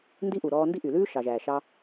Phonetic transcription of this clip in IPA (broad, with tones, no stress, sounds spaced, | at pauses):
n d i˦ ʔ u˨ ɾ ɔː˧ n d i˦ ʔ y˨ l ʉː˦ ʃ ɑ˨ ʒ æː˨ ʃ ɑ˧